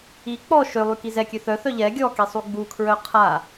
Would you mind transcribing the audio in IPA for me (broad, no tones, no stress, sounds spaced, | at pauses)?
i k͡p ɔ ʃ ø lˠ y k i z ɛ kʲ ø θ œ θ œ ʎ ɛ ɡʲ ɔ k i sˤ u ɡ͡b u kʰ ɹ œ qʰ a